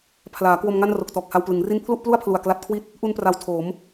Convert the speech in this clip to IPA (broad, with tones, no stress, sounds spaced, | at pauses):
pʰ l aː˩˦ k w o˧ m ŋ a˥˩ n r o˨˩ k̚ t ɔː˨˩ k̚ h a˧ w p l ɯ˩˦ ŋ r i˥˩ n pʰ l u˥˩ ʔ p l u˥˩ a̯ pʰ l u˨˩ a̯ k l a˦˥ t̚ kʰ w i˥˩ t̚ | ʔ u˧ n p r a˩˦ w tʰ oː˩˦ m